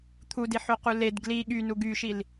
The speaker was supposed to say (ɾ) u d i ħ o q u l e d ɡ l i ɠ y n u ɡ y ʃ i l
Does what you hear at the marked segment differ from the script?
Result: yes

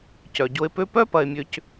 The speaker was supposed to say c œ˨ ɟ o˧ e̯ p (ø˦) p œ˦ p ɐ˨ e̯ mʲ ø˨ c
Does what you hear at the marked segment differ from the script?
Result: no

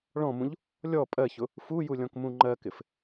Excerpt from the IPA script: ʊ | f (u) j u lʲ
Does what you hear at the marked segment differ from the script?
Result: no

